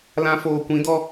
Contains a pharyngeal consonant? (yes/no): no